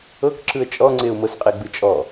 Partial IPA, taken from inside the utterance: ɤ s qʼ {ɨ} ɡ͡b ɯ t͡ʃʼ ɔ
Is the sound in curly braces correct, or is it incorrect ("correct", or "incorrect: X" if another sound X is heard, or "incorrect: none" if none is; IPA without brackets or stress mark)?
incorrect: e